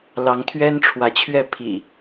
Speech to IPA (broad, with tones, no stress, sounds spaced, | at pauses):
l ɑ˨˦ ŋ t̪ʰ ɥ ɛ˦ n ʈ͡ʂʰ w ä˨˦ t͡ɕʰ ɥ ɛ˥˨ pʰ ḭ˨˩